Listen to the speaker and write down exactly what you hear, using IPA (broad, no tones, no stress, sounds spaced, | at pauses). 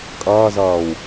kʼ ʌː z ʌː w